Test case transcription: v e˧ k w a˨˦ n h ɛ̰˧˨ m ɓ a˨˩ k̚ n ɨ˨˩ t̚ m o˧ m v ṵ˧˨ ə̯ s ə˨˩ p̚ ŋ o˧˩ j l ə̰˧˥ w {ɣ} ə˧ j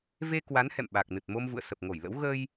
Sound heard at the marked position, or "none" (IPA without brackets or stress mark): ɣ